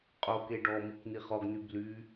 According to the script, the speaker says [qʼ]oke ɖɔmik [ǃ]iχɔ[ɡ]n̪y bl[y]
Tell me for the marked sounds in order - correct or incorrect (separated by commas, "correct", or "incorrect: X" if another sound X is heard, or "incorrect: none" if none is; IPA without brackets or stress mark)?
correct, incorrect: n̪, correct, correct